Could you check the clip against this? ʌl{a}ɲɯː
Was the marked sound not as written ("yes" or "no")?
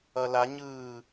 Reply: no